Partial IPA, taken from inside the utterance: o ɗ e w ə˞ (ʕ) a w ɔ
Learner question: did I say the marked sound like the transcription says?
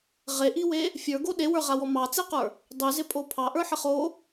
no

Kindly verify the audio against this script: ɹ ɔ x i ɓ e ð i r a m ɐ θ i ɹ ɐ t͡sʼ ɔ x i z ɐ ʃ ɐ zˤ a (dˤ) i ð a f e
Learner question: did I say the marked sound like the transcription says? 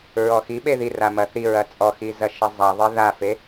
no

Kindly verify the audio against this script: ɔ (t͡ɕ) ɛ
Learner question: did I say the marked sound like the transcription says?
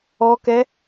no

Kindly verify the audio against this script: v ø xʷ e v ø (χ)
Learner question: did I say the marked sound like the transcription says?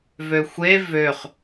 yes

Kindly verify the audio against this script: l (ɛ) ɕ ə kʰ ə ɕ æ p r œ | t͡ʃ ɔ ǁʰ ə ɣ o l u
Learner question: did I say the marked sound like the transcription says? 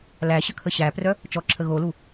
no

